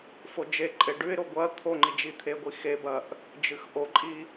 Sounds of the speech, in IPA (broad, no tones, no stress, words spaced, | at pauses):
fod͡ʒeǃʼe ɖʉɪ̯ɾo ɡʷɐ t̪ʰoŋ͡ǃi d͡ʒit̪ʰeɡʷi xebɐʔ | d͡ʒɨxʔoǃʼi